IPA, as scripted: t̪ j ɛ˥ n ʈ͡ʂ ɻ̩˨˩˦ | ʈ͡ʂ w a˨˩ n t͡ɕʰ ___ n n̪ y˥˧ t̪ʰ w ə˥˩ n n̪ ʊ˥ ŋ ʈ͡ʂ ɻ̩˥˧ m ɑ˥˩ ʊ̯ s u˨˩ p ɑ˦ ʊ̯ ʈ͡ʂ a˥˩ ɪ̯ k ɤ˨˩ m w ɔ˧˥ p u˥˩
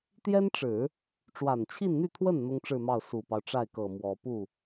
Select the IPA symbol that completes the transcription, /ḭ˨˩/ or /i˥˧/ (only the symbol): i˥˧